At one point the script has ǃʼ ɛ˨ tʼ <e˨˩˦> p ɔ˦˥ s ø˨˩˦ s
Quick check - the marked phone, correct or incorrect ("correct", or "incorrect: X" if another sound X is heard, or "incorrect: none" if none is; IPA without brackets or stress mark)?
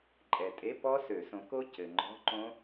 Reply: incorrect: e˧˥˧